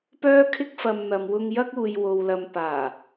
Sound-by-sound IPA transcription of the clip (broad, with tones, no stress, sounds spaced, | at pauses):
p œː˥ kʰ ɪ˥ k̚ f ɐ˧ m n̪ ɐ˨ m w ʊ˧ ŋ j ɐ˥ k̚ uː˨ j w o˨ w l ɐ˨˧ m p aː˨˩